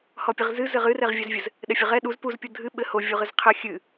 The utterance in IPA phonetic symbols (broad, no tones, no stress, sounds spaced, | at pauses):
h ɔ pʲ ɨ ʁ z ɨ z ɘ ʁ ɨ r ɛ ʁ vʲ ɛ z vʲ ɘ z | ɗ ɛ fʲ ɘ ʁ ɛ ɗ u z p u z pʲ o dʱ ɨ ɓ ɘ h o vʲ u ʁ ɨ z qʰ ɘ xʲ ɨ